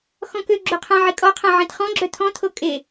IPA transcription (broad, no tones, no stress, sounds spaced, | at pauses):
x ɔ̃ k ø ɡ͡ǁ o qʰ ã ʕ i kʼ ɔ qʰ ã ʕ ĩ t χ ɔ̃ ɡ͡ǁ œ t̪ʰ ɔ̃ t̪ʰ o kʼ e